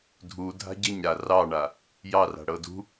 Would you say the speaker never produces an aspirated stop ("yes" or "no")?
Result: yes